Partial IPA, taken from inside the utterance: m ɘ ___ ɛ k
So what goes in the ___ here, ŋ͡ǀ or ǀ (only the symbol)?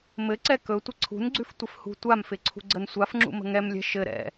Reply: ǀ